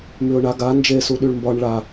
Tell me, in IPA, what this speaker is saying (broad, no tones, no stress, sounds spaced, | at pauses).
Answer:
m y ʊ̯ ɳ a ɡ a n d͡ʒ e s u ɗ y ɭ m b ɒ ɳ ɭ a